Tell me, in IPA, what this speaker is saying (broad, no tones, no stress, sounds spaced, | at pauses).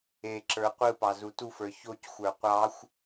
e ǁ ə˞ qʷ ɯ p ɑ z u t u f ə˞ ç o c xʷ ə˞ qʷ ɑ xʷ